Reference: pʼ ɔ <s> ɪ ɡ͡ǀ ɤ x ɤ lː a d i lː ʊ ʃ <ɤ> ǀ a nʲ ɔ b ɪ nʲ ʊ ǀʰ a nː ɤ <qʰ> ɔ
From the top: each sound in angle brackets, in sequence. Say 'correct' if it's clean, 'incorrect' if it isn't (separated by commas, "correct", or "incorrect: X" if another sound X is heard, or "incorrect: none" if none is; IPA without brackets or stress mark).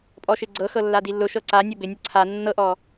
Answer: incorrect: ʃ, correct, incorrect: ʔ